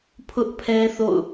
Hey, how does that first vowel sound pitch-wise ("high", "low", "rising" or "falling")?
high